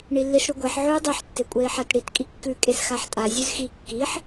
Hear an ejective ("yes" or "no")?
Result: yes